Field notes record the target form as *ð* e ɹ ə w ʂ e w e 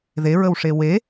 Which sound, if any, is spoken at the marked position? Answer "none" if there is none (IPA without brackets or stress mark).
ð